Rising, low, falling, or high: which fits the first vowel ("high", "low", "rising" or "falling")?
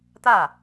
falling